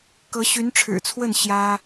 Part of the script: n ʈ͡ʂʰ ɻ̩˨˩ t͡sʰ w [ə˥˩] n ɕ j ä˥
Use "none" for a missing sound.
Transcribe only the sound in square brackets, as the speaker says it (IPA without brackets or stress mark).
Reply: ə˥˩